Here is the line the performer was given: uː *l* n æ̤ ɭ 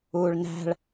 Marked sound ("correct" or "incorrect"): incorrect